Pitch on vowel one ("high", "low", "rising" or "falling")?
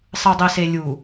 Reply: low